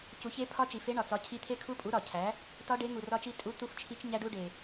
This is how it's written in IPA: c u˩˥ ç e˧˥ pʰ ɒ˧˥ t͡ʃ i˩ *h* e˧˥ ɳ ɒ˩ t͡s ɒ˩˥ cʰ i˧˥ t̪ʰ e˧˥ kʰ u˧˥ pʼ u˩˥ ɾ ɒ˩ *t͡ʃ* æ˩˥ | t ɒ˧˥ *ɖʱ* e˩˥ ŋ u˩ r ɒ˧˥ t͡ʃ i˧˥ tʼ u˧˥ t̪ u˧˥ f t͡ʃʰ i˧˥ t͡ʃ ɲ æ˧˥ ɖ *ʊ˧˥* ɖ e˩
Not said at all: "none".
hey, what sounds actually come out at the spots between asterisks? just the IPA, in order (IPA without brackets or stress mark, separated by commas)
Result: f, cʰ, ɖ, u˧˥